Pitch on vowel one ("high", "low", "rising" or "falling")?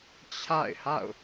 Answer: falling